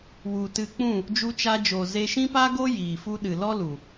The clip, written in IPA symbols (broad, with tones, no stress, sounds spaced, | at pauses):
w u˨ t ɨ˧ k͡p ũ˦˨ | d͡ʒ u˧ t͡ʃ a˧ d͡ʒ o˨ z e˧ ʃ ĩ˦ p a˦ ɡ o˦ j iː˨ f u˦ ɗ ɨ˨ l ɔ˦ l u˨